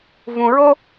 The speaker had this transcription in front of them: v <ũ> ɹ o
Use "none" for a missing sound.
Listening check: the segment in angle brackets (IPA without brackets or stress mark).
ũ